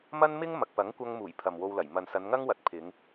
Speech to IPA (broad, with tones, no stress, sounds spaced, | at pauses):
m ɐ˥ n m ɪ˥ ŋ m ɐ˨ k̚ p ɐ˨˥ ŋ kʷ ɐ˧ ŋ m uː˨˩ j pʰ ɐ˨ m w o˧ w l ɐ˨˩ j m ɐ˨ n s ɐ˨˧ n ŋ ɐ˥ ŋ w ɐ˨ t̚ pʰ ɪ˨˧ ŋ